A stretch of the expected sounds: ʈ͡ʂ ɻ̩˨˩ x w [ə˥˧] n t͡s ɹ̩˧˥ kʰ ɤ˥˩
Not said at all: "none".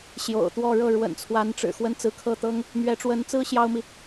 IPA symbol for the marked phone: ə˥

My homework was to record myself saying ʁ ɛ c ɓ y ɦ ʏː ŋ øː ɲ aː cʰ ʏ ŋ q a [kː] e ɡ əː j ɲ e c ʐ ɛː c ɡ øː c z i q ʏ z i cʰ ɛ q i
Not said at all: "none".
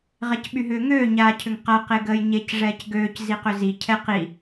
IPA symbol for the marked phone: q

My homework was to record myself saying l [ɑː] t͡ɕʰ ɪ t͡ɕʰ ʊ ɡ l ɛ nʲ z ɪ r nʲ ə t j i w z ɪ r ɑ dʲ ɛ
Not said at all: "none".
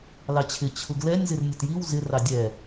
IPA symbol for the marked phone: ɑ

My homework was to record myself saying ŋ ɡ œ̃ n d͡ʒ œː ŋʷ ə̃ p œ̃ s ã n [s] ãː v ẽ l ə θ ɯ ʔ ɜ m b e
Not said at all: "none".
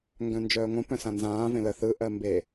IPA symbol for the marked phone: z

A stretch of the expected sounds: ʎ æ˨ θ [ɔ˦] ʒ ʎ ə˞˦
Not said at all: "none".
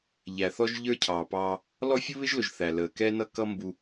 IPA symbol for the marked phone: ɔ˦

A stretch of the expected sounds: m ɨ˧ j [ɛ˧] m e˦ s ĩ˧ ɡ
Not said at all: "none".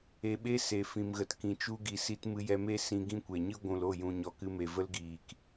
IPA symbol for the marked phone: ɛ˧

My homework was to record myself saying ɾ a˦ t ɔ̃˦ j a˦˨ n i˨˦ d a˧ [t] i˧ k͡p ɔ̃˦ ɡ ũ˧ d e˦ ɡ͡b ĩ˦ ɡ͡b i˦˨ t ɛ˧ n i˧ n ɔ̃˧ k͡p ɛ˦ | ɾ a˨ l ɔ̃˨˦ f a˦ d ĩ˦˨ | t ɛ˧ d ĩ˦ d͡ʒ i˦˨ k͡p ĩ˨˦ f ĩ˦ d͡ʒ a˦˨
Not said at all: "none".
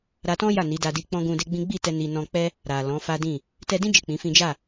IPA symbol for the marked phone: d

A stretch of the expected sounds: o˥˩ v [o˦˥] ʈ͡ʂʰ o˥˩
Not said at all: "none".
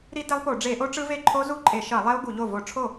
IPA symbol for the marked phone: o˧˩˧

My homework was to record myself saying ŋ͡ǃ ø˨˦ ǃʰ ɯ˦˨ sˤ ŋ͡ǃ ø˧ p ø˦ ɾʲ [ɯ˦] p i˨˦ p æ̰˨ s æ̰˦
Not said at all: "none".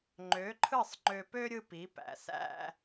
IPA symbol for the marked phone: ɯ˦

